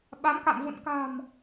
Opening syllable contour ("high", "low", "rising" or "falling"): rising